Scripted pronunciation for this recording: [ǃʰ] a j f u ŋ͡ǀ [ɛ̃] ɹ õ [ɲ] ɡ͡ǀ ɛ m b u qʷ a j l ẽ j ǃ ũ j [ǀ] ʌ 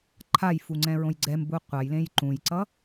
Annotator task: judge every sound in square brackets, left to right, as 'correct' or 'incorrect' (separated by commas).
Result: correct, correct, incorrect, correct